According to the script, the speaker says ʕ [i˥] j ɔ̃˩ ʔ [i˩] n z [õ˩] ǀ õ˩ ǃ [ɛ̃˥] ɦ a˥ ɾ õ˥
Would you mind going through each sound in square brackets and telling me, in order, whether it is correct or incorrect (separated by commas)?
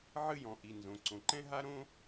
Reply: incorrect, correct, correct, correct